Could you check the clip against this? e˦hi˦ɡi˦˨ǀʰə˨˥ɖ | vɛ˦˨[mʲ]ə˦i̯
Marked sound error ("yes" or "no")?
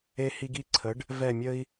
no